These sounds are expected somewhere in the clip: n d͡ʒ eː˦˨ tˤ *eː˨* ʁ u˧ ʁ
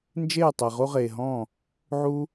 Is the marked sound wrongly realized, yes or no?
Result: yes